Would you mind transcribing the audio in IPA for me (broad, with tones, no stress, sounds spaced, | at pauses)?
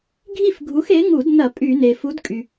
ɡʱ i˥˨ f ɡʱ u˨˥ x e˨˥ ŋ u˧˩˧ d n ɐ˧˩˧ pʼ y˧˩˧ n e˩ f u˨˥ d kʼ y˩